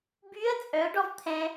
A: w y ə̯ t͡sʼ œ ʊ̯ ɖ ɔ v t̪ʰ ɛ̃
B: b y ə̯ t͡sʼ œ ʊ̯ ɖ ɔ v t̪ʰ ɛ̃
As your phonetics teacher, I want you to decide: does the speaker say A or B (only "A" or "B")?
B